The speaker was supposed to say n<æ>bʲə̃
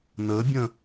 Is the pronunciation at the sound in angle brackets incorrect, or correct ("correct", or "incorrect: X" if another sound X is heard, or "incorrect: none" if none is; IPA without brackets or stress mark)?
incorrect: ə